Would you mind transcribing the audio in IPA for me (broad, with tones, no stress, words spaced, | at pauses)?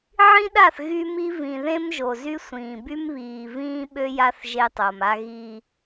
ʕĩ˦ɗa˦˨θ ɣy˦mi˦ vĩ˨ðẽ˦mʒo˨zy˦ sʷĩː˨by˦m βiː˨vĩː˦ ɓø˦ja˦θ ʒe˦tˤo˨ma˦ ɣi˦